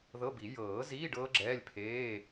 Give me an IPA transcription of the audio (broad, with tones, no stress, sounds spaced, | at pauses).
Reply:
ð ɤ˧˥˧ b i˨˩˦ j ɤː˨˩˦ z iː˧˥˧ ɖ ɤː˦˥ ɡ͡ǁ ɛː˧˥˧ lʲ pʰ eː˧˥˧